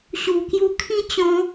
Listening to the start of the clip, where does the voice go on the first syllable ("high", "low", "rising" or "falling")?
low